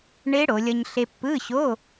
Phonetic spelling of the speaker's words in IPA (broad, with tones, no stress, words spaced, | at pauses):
ɳe˦˥ ɽo˩˧lʲʌ˧ɲ ɬe˧pːɯ˧˥˧ɕo˧˥˧